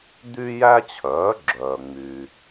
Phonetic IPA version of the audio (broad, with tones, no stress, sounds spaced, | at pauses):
d̪ y˥ j æ˥ t͡ɕʰ œː˩˥ ɡ͡ǁ œː˩ ŋ͡m y˩